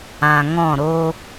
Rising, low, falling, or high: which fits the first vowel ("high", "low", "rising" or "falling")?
low